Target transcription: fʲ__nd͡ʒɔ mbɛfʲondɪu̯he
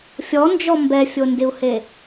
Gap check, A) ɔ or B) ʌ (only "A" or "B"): A